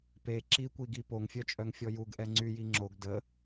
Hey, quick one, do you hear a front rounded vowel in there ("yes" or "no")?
yes